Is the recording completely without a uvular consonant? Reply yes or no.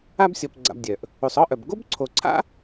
yes